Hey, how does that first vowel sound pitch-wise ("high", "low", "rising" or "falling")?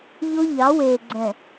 high